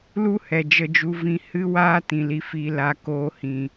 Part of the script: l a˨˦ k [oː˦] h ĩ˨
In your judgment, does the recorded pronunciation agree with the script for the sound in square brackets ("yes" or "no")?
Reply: no